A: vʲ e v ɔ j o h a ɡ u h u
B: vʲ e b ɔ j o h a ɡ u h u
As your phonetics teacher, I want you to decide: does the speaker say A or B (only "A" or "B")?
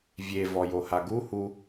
A